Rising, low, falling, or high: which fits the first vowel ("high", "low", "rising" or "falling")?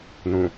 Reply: low